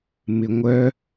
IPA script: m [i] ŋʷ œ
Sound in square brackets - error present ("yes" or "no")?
yes